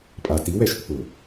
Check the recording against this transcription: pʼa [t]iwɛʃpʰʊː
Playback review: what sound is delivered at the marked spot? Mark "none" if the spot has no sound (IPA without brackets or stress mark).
t